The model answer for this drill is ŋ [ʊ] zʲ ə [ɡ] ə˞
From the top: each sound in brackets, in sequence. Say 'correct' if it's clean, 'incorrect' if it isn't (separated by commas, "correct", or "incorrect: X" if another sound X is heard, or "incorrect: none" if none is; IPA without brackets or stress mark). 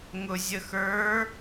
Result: correct, incorrect: x